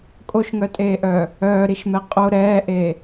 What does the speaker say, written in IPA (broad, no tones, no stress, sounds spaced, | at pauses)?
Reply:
kʼ o ʃ ŋ œ tʼ eː ʔ œː | œː ɾ i ʃ m ɛ qʼ o ɾ ɛː ʔ eː